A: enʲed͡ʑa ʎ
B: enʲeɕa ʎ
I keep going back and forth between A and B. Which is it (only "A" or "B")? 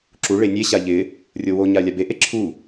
B